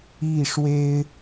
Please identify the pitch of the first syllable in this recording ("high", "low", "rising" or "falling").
falling